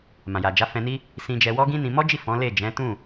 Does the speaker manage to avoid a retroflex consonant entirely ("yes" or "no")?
yes